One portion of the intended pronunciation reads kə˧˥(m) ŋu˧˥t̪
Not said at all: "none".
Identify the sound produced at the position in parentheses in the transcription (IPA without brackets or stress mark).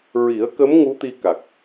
m